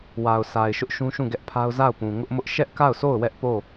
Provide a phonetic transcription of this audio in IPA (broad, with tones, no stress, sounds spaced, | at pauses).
w a˨ ʊ̯ sʰ a˨ ɪ̯ ʃ ʊ˦ ʔ ʃ ũ˦ ʃ ũ˦˨ ɡ ɛ˦ ʔ pʰ a˦ ʊ̯ z a˦˨ ʊ̯ p ũ˨ ŋ ʊ˦ ʔ m ʊ˦ ʔ ʃ ɛ˦ ʔ k a˦˨ ʊ̯ sʰ o˦˨ ʊ̯ w ɛ˦ ʔ p o˦˨